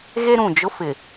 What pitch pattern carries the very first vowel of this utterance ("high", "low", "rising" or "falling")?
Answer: high